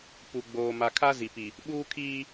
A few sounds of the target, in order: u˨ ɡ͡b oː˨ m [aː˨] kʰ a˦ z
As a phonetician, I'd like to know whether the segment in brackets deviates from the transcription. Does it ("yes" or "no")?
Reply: yes